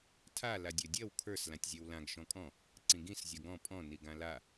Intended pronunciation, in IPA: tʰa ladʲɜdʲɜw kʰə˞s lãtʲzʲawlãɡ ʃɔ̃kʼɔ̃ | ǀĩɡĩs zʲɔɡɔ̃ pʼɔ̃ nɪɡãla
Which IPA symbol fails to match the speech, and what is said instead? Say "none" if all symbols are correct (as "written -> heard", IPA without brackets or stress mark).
ɪ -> i